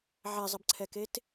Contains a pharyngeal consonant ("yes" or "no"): yes